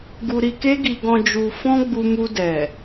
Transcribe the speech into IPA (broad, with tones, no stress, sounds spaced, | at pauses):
ɡ u˧ ɾ i˧ k e˦ ɡ i˧ ɡ ɔ̃˧ d͡ʒ u˧ f ɔ̃˦ ɡ͡b u˧ m u˧ d ɛ˨